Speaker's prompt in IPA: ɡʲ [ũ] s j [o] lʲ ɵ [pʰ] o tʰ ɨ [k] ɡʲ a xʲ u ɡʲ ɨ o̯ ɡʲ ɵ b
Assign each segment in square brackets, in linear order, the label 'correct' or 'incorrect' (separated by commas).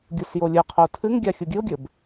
incorrect, correct, incorrect, incorrect